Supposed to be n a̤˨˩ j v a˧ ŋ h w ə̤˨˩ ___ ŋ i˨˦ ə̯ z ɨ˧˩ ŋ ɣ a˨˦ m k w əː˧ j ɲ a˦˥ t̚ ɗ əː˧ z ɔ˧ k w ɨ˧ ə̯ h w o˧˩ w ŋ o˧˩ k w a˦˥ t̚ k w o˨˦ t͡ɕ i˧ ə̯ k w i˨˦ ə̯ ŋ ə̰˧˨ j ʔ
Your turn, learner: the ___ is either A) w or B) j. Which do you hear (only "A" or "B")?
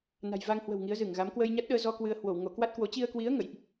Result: A